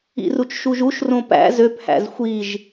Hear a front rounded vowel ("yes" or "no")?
yes